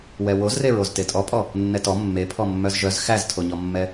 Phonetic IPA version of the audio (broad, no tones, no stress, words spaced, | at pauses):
wɛwozreɹoz tetʼɔpʼɔ | nːɛtɔ mːe pʰɔmːœzʒœz xæztʰoɲɔmːɛ